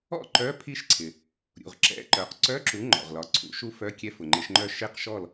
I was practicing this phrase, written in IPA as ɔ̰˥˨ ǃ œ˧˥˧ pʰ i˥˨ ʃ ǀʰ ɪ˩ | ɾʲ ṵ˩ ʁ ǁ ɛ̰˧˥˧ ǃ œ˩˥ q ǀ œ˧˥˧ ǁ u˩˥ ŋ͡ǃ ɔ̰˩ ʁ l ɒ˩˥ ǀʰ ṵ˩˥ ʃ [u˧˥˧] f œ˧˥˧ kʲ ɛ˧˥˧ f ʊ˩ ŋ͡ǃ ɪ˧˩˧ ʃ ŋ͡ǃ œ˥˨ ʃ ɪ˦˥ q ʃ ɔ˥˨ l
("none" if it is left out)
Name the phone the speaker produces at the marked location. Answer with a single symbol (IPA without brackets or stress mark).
u˦˥